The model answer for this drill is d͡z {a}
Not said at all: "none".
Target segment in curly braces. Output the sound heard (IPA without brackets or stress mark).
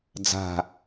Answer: a̤